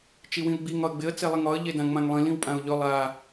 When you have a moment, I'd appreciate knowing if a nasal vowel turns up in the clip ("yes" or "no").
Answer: yes